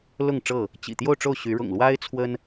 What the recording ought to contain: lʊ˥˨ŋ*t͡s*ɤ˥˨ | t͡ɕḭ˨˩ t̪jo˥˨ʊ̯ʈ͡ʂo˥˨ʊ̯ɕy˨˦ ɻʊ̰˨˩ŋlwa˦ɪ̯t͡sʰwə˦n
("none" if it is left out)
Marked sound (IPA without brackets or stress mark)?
ʈ͡ʂ